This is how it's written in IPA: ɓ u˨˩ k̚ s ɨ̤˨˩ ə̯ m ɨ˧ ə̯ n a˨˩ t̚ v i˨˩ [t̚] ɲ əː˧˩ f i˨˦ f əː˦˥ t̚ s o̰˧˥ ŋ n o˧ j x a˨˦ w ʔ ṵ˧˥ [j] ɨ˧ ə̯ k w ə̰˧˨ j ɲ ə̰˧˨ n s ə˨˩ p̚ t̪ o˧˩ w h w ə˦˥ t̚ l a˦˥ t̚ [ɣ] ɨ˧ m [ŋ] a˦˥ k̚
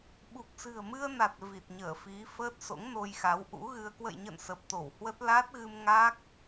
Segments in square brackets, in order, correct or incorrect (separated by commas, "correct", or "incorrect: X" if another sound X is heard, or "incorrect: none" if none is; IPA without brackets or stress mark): correct, incorrect: ɣ, correct, correct